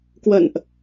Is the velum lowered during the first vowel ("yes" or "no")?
no